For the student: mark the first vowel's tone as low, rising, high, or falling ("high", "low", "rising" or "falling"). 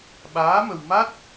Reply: rising